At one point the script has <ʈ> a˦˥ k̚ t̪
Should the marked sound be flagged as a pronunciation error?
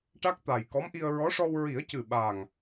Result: no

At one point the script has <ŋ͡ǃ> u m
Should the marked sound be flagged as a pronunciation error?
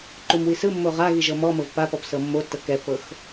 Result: yes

